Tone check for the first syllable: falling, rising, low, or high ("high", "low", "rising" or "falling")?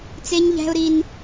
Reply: high